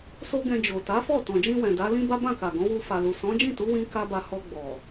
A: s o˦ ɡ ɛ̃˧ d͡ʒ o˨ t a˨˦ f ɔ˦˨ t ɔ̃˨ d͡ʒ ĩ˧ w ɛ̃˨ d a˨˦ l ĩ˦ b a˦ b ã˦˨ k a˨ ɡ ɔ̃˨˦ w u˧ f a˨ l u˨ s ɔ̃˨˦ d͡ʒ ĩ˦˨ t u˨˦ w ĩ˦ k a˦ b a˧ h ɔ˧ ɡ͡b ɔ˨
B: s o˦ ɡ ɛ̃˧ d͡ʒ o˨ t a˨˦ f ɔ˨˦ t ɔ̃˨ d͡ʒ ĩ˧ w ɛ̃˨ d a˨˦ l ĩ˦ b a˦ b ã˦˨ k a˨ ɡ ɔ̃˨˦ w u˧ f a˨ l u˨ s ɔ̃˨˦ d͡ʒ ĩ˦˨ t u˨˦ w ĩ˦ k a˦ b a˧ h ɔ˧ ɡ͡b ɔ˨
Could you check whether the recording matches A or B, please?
A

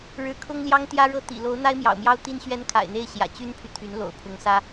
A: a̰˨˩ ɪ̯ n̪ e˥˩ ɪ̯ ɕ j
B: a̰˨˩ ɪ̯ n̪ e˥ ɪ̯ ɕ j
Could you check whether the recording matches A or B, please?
A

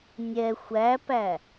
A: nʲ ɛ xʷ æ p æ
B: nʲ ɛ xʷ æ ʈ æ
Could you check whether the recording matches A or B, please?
A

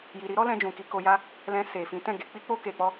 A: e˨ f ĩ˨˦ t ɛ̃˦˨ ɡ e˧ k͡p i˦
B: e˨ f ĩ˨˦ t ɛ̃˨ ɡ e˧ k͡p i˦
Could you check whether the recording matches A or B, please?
A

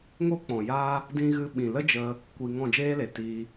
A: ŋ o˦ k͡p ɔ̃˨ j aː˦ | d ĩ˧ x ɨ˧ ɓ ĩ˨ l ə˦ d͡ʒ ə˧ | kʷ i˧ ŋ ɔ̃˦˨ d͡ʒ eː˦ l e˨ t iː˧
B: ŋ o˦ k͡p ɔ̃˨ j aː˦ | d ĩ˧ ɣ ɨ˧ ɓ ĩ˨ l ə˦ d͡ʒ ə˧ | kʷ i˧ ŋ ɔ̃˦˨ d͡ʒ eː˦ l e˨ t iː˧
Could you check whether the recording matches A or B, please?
B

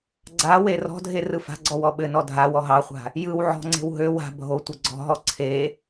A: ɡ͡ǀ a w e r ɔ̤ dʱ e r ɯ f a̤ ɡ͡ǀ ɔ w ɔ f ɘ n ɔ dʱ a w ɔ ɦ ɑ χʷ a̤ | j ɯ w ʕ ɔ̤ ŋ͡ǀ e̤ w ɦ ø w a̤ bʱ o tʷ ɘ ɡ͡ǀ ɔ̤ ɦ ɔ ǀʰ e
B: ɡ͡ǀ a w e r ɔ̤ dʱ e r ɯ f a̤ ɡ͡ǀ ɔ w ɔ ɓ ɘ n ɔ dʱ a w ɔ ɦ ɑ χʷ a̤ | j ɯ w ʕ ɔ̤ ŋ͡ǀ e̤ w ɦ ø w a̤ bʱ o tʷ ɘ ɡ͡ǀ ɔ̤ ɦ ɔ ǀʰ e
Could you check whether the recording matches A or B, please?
B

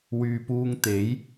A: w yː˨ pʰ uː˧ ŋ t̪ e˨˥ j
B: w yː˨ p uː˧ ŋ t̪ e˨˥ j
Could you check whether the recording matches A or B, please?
B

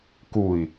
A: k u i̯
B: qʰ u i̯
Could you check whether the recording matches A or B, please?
A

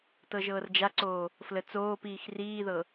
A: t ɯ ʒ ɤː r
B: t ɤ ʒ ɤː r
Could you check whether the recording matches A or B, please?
B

